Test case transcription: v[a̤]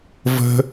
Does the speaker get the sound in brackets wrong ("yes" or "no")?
yes